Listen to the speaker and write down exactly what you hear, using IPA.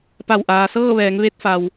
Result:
p a˧˩ w ʔ aː˩ s ɤː˥˨ ʋ ɛː˩˧ ŋ ʋ e˧ t̚ f a˩ w

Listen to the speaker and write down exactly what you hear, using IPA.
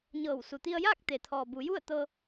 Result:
ɲ ɤː˧˩ w s u˩ t̪ i˧ ə̯ j aː˥˨ k̚ t̪ e˩ t̪ʰ ɔː˩ b u˩˧ j u˥˨ ə̯ t̪ ɤː˧

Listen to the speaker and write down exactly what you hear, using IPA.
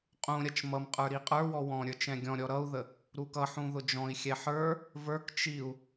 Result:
qʼ ũ ɾʲ ʌ t͡ʃ m ʌ m qʼ ə˞ ɾ i qʼ ə˞ w ɔ w ɔ̃ ɾʲ ə˞ t͡ʃ ɛ̃ ɡʲ ɔ̃ ɾʲ ɔ ɾ ʌ u̯ ð ə | ɾ u k ʌ ħ ũ ð ʊ d͡ʒ ɔ̃ i̯ xʲ ɛ ħ ə˞ | v ə˞ k t͡ʃ i u̯

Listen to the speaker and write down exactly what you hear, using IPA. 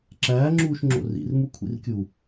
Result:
ǁ æː ŋ͡ǁ uː ʃ ŋ͡ǁ o̰ r ḭ r m u kʷʰ ḭ r kʲ u

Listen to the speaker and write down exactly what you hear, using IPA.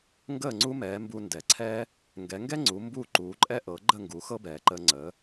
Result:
ŋ ɡ əː˥˩ ŋ͡ǀ u˥ m ɛː˩˥ m b u˧ n d ɛ˩ ǀʰ ɛ˥ | ŋ ɡ ɛ˩˥ ŋ ɡ ɛ˥ ŋ͡ǀ u˩˥ m b uː˥˩ ǃ uː˩˥ ǃʼ ɛ˥ ʔ ɤ˩˥ ɡ͡ǃ ə˥˩ ŋ ɡ u˩˥ x ɤ˥ b ɛː˩ ǃ əː˧ ŋ͡ǀ əː˩˥

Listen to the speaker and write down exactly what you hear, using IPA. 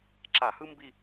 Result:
ǁ a˧˩˧ h ɯ˥ m b i˦˨

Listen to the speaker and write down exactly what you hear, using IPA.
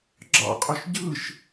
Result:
ɡ͡ǁ ɑ̰ qʼ ø ʃ ɟ ɯ ʃ

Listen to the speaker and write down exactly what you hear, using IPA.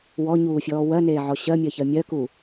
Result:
w ɔ ɲ uː fʲ ɔː w ɜ n eː ʕ ɔ ɕ ɜ mʲ ɜ ç ɜ mʲ ɜ k u

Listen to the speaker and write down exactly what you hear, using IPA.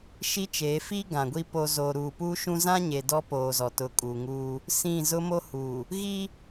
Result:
ʃ i˦ t͡ʃ eː˨˦ f i˦ ɡ ã˨ ɡʷ i˦ p o˦ z o˨ ɾ uː˨ p uː˦ ʃ ũ˦ z ã˦ ɲ e˨ d ɔ˦ p oː˨ z ɔ˨ t ʊ˨˦ kʼ uː˨ ŋ uː˦ | s ĩ˦˨ z ʊ˦ m o˦ h uː˨ | ɣ i˦

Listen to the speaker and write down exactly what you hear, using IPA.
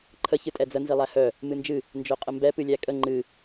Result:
ǃʰ ə ç ɨ tʼ ɛ d͡z ə n z i lˠ æ h œ | m ɨ n d͡ʒ ɨ | n d͡ʒ œ qʼ ə m b ɛ p ɨ lʲ æ kʼ ə ŋ͡ǃ ɨ

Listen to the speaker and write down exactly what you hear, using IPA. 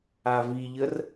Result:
a v i ʎ ə r

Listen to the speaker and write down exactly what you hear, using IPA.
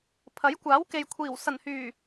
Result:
pʰ ɐ˨˥ j kʷ aː˨˥ w k e˨ j kʷʰ iː˨˩ w s ɐ˨˩ n h yː˨˩

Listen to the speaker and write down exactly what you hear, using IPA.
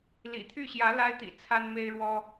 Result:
l ḭ˨˩ t̪ʰ y˥˩ ɕ j ä˧˥ l a˥ ɪ̯ t̪ ḭ˨˩ t͡sʰ a˥ n m e˥ ɪ̯ ɻ w ɔ˥

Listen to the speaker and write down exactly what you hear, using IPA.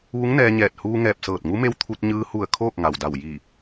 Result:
ʋ u˧˥ ŋ n ɛː˧ ɲ ɛː˧˩ t̚ h uː˧ ŋ ɛː˧˩ p̚ s ɤː˧˩ t̚ ŋ u˧˥ m e˧˥ w t̪ʰ u˧ t̚ ɲ ɯː˧ h u˧˩ ə̯ kʰ oː˥˨ k̚ ŋ a˩ w d a˧˩ w j i˧˩

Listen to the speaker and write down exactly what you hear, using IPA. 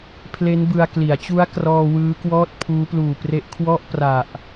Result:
pʰ l e˦˥ n b ɯ˧ a̯ k l i˩˦ a̯ t͡ɕ u˦˥ a̯ k r ɔː˧ w ɯː˦˥ k w ɔː˥˩ t̚ pʰ uː˦˥ p l uː˨˩ p r e˦˥ ʔ kʰ w ɔ˥˩ ʔ p r a˨˩ ʔ

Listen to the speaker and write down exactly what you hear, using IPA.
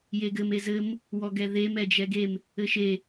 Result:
j e ɡ ɘ m e z ɘ m | w ɔ ɡ ɛ ð e m ɛ d͡ʒ ɛ ɡ e m | ɘ ʃ e

